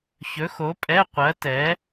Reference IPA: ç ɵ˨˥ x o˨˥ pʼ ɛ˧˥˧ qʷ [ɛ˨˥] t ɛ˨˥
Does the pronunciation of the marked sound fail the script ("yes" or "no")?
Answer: yes